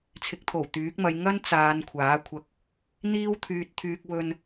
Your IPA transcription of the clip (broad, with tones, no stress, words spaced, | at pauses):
t͡sʰɪ˨˥k̚t̪ʰo˨˩wt̪yː˨˥k̚mɐ˧j ŋɐ˥nt͡saː˨˧n kʷʰaː˨˥kʷʰɐ˧k̚ | n̪iː˥wt̪ʰyː˧t̚t̪ʰyː˧k̚ wɵ˧n